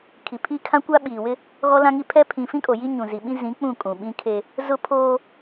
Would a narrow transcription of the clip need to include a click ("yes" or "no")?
no